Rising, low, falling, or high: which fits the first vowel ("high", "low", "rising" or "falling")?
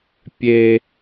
high